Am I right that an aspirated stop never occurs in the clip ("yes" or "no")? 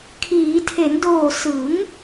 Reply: no